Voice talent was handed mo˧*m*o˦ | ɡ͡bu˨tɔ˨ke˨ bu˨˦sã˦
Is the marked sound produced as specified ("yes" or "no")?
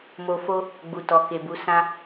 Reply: no